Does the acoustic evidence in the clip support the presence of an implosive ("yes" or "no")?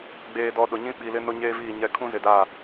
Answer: yes